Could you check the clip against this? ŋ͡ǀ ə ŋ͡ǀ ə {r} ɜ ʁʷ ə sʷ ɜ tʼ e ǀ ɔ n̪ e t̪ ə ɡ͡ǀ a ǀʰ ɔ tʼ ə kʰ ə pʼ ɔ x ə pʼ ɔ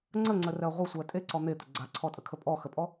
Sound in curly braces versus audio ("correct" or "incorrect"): correct